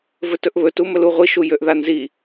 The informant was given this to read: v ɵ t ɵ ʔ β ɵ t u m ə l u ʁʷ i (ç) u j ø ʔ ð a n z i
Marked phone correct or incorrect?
incorrect